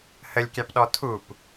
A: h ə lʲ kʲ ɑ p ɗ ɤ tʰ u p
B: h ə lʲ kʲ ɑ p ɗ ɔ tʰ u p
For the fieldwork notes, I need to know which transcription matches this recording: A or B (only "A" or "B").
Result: B